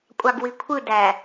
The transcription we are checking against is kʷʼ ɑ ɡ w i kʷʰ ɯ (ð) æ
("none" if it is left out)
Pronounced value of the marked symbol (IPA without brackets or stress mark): d